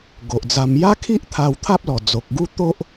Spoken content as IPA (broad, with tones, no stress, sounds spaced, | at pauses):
ɡ o˨ ʔ d͡z a˧ m j a˦ kʰ i˦ ʔ t̪ʰ a˧ w t̪ʰ a˦ p̚ l ɔ˨˩ d͡z o˨ k̚ ɡ u˦ t̪ o˦ ʔ